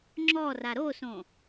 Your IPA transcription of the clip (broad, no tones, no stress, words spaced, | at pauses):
ŋ͡ǁɔ raɾosõ